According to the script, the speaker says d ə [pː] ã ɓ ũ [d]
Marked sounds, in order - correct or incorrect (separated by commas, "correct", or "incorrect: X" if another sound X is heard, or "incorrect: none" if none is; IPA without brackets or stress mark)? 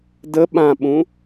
incorrect: ɓ, incorrect: none